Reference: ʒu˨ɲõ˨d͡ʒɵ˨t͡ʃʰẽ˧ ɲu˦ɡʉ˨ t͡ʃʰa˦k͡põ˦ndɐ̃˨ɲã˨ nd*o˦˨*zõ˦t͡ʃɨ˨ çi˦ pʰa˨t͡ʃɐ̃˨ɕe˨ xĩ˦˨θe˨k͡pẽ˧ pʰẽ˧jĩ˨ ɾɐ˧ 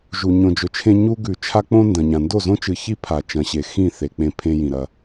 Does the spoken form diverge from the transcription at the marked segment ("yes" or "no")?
no